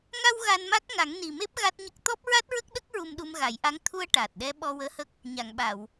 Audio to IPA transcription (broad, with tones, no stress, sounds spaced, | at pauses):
ŋ a˧ w ɣ a˧ n m a˦˥ k̚ ŋ a˨˩˦ ŋ n i˨˩ m e˦˥ p̚ ɣ a˦˥ t̚ ɲ ə˦˥ k̚ t̪ ɔ˦˥ p̚ ɹ a˦˥ t̚ ɹ ə˦˥ k̚ ɗ ə˦˥ k̚ ɹ u˧ m ɗ u˧ m ɣ a˨˩˦ j ʔ a˧˥ ŋ t̪ʰ u˧ ə̯ ʈ aː˨˩ t̚ ɗ ɛ˧˥ ɓ ɔ˧ w əː˧˥ h ə˦˥ k̚ | ɲ a˨˩˨ ŋ ɓ a˨˩˨ w